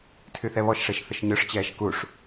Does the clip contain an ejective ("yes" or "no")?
no